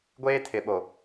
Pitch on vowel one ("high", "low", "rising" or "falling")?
high